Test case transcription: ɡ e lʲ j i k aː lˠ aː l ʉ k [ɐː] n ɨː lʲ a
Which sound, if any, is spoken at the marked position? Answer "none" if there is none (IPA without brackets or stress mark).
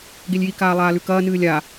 ɐː